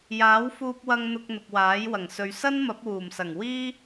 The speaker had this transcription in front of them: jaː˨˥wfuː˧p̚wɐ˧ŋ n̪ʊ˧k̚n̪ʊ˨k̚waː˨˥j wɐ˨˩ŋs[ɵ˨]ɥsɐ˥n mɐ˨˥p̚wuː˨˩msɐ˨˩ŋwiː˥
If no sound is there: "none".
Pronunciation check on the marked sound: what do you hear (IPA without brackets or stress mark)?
ɵ˨